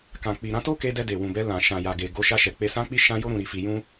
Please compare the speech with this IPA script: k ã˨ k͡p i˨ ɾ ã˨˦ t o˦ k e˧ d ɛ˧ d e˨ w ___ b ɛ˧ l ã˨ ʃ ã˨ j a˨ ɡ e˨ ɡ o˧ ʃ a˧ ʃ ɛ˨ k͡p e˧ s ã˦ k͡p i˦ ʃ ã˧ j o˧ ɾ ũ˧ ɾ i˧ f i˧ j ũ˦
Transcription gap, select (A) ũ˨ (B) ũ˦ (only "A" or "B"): A